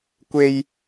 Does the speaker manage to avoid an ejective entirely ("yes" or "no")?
yes